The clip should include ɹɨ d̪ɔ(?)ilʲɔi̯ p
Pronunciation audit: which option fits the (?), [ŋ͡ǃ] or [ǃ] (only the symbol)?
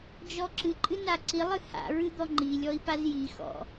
ŋ͡ǃ